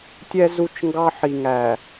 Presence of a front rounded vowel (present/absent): absent